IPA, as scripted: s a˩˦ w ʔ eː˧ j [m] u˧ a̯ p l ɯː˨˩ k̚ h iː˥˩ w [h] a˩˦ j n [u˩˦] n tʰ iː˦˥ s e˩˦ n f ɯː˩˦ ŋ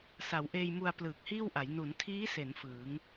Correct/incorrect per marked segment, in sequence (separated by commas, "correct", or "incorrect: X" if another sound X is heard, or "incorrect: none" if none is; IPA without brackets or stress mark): correct, incorrect: ʔ, correct